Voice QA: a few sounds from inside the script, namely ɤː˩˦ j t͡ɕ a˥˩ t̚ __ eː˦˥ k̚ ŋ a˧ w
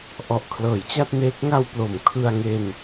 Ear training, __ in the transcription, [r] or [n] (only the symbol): n